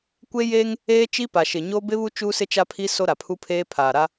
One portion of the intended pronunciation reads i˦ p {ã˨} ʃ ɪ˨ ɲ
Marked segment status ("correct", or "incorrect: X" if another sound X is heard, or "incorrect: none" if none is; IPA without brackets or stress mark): incorrect: a˨